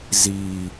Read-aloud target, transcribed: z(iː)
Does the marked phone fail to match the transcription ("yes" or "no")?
no